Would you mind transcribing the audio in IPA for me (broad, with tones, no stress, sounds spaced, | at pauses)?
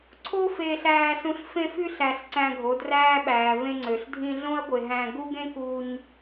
ǀʰ o˦ f eː˧ ɬ æː˧ s ũ˧ ɬ f ẽ˧ f y˧ ɬ æ˨ ɬ ǀ æ̃˧ ɡʱ o˨˦ d r æː˦ ɓ æː˨ v ẽ˧ ŋ͡ǀ ø˨ ɬ dʱ ĩ˧ ɮ õ˦ ɐ̯ ɡʷ e˨ ɦ æ̃˧ ɡ u˦ ɡ ẽ˦ k u˧ ɲ